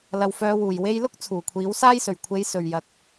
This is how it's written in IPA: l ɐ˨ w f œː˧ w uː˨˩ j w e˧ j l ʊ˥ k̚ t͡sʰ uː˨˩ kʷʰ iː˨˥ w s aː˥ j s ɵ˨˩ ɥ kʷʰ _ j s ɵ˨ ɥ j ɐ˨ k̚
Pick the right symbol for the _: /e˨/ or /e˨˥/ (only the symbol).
e˨˥